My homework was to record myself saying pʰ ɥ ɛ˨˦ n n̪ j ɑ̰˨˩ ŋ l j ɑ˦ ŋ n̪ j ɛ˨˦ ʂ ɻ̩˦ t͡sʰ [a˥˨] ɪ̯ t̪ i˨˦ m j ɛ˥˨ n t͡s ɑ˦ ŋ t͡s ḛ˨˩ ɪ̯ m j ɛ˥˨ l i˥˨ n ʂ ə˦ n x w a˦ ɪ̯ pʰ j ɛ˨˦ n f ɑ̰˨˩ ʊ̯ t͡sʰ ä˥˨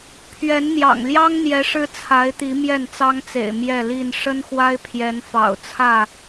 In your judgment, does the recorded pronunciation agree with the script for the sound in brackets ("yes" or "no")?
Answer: no